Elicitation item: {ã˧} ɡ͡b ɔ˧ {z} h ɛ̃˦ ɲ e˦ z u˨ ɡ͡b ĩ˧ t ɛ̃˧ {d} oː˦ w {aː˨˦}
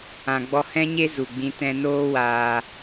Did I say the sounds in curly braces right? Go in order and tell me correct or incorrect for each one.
incorrect, incorrect, incorrect, incorrect

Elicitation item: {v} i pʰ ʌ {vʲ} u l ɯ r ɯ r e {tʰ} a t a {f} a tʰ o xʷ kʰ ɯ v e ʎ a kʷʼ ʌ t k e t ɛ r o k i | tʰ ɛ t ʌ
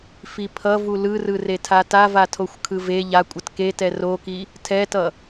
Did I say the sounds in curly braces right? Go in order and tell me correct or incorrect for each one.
incorrect, incorrect, correct, incorrect

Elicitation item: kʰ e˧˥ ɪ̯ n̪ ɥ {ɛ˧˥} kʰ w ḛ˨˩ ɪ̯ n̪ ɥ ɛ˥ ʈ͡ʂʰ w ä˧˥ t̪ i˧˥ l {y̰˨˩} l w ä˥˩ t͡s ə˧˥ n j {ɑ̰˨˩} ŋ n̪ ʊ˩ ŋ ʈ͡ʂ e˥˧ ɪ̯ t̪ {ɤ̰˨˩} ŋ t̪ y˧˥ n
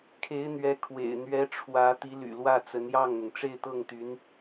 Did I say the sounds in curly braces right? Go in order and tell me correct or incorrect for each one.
correct, correct, incorrect, incorrect

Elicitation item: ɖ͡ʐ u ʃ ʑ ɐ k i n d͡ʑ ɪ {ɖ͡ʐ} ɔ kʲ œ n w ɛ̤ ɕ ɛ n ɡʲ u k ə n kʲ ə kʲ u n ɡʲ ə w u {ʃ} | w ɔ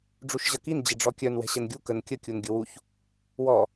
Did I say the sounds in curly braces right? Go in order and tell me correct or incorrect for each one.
correct, incorrect

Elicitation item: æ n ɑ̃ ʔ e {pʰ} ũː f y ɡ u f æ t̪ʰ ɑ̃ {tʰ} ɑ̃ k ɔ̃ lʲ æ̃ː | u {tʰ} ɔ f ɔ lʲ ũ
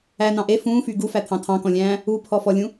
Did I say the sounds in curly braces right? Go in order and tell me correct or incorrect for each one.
incorrect, correct, incorrect

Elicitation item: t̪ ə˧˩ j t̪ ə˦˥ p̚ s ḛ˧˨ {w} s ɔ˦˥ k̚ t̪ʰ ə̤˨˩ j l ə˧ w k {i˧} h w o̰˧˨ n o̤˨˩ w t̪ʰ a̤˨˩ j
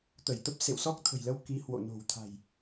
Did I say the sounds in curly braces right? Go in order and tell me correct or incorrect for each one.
correct, incorrect

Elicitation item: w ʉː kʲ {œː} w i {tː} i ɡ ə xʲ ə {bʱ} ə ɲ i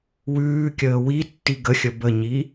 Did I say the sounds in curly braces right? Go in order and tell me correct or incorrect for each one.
incorrect, correct, incorrect

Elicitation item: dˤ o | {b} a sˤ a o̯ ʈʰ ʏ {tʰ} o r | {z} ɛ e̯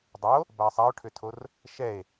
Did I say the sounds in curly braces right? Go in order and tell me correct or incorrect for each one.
correct, correct, incorrect

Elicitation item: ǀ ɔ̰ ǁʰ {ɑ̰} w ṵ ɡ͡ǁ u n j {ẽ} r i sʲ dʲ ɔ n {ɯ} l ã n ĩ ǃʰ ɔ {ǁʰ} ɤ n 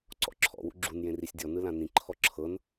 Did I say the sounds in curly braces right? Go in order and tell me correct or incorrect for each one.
incorrect, correct, correct, correct

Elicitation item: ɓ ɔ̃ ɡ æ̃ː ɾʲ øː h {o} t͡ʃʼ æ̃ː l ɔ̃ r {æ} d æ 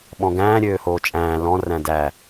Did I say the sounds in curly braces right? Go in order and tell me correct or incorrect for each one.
incorrect, incorrect

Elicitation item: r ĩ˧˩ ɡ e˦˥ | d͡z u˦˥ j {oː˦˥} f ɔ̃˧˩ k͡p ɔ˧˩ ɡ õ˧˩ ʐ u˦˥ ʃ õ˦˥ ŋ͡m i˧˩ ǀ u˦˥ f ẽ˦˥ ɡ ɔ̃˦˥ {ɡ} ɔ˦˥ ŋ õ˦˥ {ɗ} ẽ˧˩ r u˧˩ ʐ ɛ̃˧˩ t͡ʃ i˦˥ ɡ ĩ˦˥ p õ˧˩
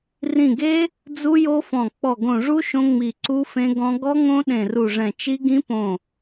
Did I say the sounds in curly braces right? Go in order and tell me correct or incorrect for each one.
incorrect, correct, correct

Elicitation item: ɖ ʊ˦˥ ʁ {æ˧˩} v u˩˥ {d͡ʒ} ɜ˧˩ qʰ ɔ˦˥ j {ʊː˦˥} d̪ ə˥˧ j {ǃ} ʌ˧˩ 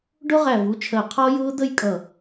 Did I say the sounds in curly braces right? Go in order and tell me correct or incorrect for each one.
correct, incorrect, correct, incorrect

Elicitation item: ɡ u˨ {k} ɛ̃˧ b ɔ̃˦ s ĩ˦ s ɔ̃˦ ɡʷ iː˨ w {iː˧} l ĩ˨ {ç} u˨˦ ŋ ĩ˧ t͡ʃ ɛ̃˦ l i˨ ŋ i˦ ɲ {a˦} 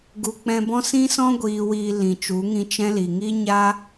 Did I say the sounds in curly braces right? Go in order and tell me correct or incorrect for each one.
incorrect, incorrect, incorrect, correct

